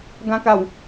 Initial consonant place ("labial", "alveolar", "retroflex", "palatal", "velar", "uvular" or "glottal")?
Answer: velar